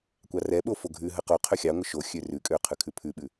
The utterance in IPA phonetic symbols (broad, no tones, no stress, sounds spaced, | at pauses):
kʷ ɑ r ɛ ɓ o f o ɡʱ ʉ ɦ ə q o qʰ ø xʲ ɑ ŋʷ ə ʃ o xʲ ø r ʉ kʼ ø qʰ ʉ kʰ ʉ pʰ ʉ ɓ ʉ